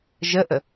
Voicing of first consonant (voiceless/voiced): voiced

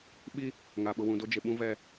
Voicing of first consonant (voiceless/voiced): voiced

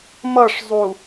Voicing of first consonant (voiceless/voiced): voiced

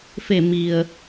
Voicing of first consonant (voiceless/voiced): voiceless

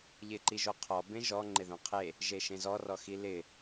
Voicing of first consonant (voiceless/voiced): voiced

